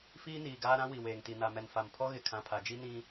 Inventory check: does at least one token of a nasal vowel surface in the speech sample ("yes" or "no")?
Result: yes